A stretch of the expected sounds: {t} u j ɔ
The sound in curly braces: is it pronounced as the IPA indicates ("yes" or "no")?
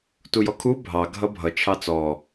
yes